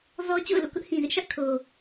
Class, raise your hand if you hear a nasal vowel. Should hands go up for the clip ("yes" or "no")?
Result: yes